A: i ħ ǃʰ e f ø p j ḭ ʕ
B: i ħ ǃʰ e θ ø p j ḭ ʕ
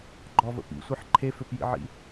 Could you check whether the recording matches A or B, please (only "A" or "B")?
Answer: A